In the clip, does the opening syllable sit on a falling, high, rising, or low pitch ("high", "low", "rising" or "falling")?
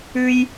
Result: high